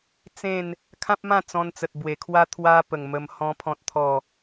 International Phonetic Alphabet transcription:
t͡s ẽ˥˧ n | kʰ ã˦ p̚ m ã˥˧ t͡s ɔ̃˧ n t͡s ə˨ t̚ b w e˨˩ kʰ w a˦ t̪ʰ w a˧ p ə˨˩ ŋ m ə˧ m h ɔ̃˦ pʰ ɔ̃˦ t̚ t̪ʰ ɔ˥˧

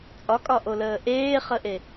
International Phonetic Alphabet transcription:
t͡sʼ ɒ kʼ ɒ ʔ o l əː ʔ eː χ ə ʔ e

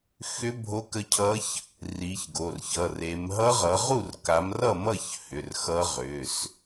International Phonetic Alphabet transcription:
x ʏ˦˥ bʱ o˦˥ k ə˦˥ cʰ ʌ˦˥ ç | r i˨˦ ç ɡ o˩˧˩ r ç ʌ˩˧˩ r e˨˦ m ɦ ʌ˦˥ ʁ ʌ˨˦ ʁ u˥˨ r k a˨˦ m r ʌ˥˨ m ʌ˥˨ ç h ʏ˩˧˩ r x ʌ˦˥ ʁ ʏ˩˧˩ s

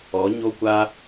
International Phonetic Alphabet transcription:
ɔ˨˦ ɲ o˦ kʷ a˦

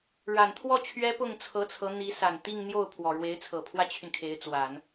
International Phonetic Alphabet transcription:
ɻ a˨˩ n t̪ʰ w ɔ˥˩ t͡ɕʰ ɥ ɛ˥ p ʊ˥˩ ŋ t͡sʰ ɤ˧˥ t͡sʰ ɤ˧˥ n̪ i˧˥ s a˨˩ n t̪ i˥˧ ŋ n̪ j o˥˩ ʊ̯ pʰ w ɔ˨˩ ɻ w e˧˥ ɪ̯ t͡sʰ ɤ˨˩ pʰ w ä˥ t͡ɕʰ y˨ n kʰ e˧˥ ɪ̯ t͡s w a˨˩˦ n

